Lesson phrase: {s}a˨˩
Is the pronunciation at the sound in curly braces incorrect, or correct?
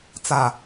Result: incorrect